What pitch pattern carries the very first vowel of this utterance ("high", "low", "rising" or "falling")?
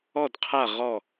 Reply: falling